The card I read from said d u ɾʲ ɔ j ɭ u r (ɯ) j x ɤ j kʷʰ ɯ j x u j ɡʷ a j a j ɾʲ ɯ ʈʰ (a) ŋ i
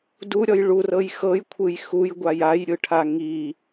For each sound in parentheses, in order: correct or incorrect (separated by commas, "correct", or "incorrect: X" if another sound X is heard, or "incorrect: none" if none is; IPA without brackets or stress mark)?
incorrect: ɤ, correct